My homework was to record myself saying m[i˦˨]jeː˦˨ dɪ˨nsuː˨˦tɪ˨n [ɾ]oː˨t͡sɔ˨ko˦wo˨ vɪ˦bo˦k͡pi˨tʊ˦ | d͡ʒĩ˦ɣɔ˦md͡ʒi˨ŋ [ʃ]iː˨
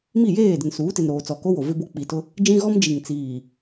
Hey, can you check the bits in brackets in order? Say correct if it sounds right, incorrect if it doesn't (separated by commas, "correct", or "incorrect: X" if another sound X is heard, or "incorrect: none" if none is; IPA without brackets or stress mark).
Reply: correct, correct, incorrect: t͡s